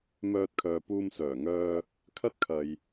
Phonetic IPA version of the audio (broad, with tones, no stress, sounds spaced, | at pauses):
m œː˧ t̚ kʰ œː˨ p uː˧ m s œː˨˩ ŋ œː˧ | kʰ ɐ˥ t̚ kʰ ɐ˧ j